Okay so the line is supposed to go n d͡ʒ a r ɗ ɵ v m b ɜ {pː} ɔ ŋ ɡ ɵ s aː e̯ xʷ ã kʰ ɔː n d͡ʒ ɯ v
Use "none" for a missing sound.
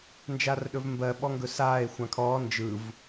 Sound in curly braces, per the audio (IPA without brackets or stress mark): ɓ